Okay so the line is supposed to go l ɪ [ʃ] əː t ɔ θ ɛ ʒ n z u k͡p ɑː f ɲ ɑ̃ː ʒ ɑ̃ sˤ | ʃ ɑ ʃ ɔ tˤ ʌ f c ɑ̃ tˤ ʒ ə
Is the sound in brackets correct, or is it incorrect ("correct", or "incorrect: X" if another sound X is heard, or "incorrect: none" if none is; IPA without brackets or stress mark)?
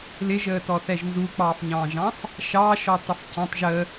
incorrect: ʒ